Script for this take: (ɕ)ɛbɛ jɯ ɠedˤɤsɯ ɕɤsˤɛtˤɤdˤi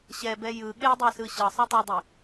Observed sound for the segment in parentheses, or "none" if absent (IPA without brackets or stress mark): ɕ